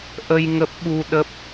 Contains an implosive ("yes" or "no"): yes